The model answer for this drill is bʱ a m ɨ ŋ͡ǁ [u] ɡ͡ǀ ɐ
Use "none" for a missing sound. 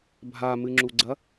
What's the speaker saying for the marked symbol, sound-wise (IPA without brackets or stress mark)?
u